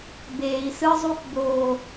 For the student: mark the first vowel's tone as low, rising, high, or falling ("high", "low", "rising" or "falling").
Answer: low